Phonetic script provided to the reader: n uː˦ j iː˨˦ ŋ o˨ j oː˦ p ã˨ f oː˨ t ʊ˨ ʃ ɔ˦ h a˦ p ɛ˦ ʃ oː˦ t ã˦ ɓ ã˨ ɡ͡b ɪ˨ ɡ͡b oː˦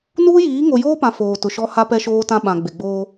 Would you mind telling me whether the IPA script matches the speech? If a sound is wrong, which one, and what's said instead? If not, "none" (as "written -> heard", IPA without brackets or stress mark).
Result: none